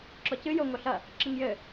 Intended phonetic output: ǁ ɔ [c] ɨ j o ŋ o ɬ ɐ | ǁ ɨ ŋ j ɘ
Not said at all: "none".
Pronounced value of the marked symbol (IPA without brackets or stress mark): c